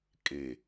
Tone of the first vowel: low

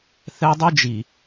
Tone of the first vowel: high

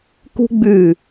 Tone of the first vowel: high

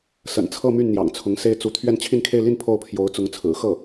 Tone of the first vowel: low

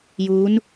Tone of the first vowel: rising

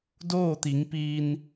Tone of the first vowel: falling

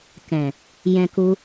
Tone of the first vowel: low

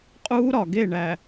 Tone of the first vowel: high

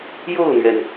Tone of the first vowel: falling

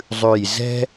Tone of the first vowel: low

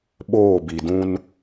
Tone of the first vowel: falling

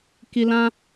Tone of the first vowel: high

